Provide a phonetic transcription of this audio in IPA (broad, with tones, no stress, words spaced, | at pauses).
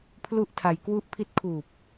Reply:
pʰlu˦˥ʔ tʰa˧jkwu˥˩ʔ pʰi˦˥t̚kʰuː˨˩p̚